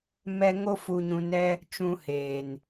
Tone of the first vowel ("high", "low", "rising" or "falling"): high